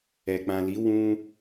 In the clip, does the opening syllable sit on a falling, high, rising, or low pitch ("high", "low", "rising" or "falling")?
low